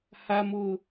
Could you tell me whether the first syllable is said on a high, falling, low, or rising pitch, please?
low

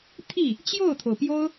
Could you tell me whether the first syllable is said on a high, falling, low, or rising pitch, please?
falling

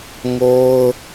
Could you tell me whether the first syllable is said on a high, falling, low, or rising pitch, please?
high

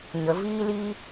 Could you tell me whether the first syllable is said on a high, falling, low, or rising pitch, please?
rising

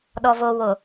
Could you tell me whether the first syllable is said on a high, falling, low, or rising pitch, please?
low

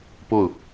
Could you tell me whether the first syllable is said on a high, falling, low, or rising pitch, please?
falling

